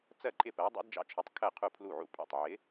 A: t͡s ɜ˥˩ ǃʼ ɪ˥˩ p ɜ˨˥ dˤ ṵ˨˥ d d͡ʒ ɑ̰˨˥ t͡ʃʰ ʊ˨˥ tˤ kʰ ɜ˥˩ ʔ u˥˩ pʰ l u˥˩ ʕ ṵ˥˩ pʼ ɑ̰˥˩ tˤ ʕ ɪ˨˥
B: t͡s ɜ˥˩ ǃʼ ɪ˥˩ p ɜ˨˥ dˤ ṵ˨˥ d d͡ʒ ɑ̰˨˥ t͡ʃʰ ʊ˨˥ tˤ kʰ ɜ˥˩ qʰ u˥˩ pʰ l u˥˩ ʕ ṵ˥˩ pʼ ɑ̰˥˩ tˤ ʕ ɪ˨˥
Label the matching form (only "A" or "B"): B